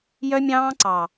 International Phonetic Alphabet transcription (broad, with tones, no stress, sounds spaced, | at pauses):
j œ˦ mʲ ɑ̃ː˦ ǀ ɑ˨